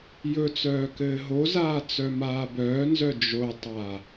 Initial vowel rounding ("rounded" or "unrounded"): rounded